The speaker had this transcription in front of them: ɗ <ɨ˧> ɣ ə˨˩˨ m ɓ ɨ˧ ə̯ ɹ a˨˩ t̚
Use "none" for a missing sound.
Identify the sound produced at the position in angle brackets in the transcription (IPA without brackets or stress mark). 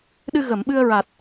ɨ˧